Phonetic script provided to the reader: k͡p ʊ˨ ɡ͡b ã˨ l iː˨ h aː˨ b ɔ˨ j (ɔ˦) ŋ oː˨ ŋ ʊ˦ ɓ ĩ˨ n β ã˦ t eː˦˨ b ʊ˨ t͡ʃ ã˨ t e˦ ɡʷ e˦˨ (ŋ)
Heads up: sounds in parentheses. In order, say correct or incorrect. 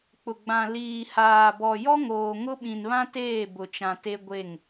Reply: correct, correct

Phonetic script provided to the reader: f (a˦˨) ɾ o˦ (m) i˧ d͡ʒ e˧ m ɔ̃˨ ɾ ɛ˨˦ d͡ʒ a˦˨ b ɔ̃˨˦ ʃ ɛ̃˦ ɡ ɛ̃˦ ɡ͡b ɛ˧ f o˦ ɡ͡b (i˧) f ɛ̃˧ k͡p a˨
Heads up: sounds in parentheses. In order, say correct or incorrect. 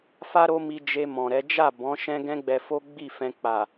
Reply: incorrect: a˦, correct, incorrect: i˦˨

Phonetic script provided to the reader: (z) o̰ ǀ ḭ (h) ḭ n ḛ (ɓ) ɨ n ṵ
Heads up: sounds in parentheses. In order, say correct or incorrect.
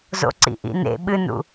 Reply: correct, incorrect: ʔ, correct

